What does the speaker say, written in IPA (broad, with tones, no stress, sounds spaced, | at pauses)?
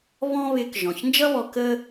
β ɔ̃˥ β ɪː˧ k ʒ ɔ̃˩ ç n d͡ʒ ʌ˥ β ɔ˧ k ə˥